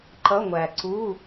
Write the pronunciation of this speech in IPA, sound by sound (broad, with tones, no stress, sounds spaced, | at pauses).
ǃ ʌ˧˥˧ ŋʷ æ˨ ǀ u˧˥˧